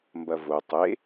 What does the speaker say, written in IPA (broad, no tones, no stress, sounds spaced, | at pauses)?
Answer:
m b ɐ v o tˤ e